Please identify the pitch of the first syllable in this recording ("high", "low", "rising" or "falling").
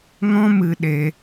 high